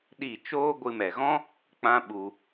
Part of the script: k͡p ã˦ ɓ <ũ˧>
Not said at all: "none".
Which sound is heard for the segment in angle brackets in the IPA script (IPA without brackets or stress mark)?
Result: u˧